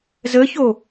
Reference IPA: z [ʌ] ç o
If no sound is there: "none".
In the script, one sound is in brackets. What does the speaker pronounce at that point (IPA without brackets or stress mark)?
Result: ə